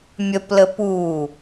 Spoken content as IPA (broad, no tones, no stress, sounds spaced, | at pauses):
mʲ ə p l ə p u